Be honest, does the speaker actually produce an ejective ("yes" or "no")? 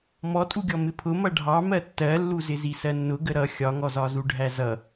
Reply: yes